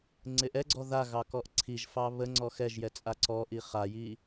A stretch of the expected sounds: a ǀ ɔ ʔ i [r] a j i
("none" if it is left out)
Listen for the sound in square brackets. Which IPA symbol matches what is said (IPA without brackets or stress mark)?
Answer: χ